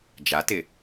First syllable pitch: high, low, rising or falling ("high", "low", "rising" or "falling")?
rising